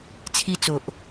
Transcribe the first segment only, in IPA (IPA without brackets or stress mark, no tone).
t͡sʰ